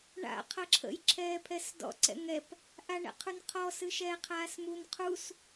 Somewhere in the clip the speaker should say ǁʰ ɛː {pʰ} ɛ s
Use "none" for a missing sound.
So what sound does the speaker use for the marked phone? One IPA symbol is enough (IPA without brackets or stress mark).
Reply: pʰ